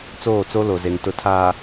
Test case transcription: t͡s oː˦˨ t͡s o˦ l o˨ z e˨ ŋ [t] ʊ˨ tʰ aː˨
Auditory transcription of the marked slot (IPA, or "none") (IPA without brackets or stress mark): t